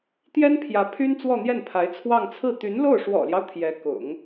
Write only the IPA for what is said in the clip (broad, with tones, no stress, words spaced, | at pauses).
t̪jɛ˥npʰjä˧˥ pʰy˥n t͡swɔ˥˧n̪jɛ˥˩npʰa˧˥ɪ̯ t͡sʰwɑ˥˧ŋ t͡sʰɹ̩˥˩ t̪y˧˥nlo˥˩ʊ̯ ʂwɔ̰˨˩ljɑ˦ʊ̯ t̪ʰjɛ˧˥ kʊ̰˨˩˦ŋ